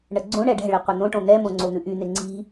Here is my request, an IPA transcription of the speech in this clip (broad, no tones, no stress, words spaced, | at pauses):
ɳəɡ͡ǀõɳɛ ɖɛ̤ɭi qʷən̪õʈõ n̪ɛmõ ŋ͡ǀon̪ʉʔyn̪e ŋ͡ǀi̤